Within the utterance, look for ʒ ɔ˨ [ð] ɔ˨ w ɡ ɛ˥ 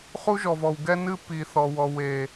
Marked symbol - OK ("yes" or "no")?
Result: no